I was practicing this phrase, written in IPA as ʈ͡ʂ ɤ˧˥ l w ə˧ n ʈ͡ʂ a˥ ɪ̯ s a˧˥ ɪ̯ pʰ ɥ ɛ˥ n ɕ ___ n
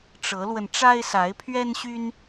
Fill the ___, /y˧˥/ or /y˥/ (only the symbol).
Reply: y˥